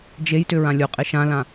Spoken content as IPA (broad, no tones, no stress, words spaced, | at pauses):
d͡ʒejtʏ ɹãlʲoqʼe ʃãlã